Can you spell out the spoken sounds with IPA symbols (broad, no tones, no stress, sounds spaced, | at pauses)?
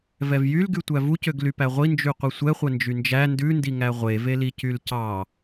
v ɛ v j y l ɡ y tʷ æ v u c ø ɡ l y p æ ʁʷ i n d͡ʒ y qʷ i sʷ ɛ χʷ ɛ n d͡ʒ y n d͡ʒ æ n d ʉ n d i ŋ æ ʁʷ e v e l i c y l c ɑ